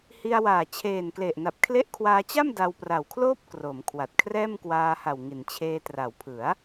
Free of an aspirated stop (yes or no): no